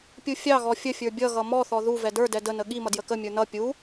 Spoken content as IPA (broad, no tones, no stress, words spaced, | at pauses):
pʲufʲɑɣɔ fʲəfʲə˞ bʲʌɣʌ mɔθɔ ðuvɛ də˞dɛ dənə ɠimʌ djəkəmʲə˞ nʌ pʲu